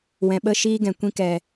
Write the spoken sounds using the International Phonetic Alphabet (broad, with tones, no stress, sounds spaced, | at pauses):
w ɛ̃˨ ɓ ə˦˨ ʃ iː˦ ɡ ɛ̃˨ kʷ ĩ˧ k ɛ˨